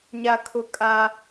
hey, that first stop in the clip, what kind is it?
aspirated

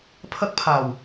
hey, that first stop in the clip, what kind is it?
aspirated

